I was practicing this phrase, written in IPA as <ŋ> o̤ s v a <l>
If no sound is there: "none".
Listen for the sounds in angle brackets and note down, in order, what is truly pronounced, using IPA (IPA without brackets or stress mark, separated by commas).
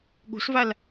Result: ɠ, l